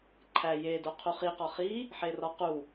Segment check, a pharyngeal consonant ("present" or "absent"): present